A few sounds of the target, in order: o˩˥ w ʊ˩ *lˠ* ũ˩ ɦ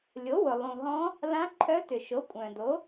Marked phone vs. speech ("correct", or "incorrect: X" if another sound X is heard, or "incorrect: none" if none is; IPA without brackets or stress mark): correct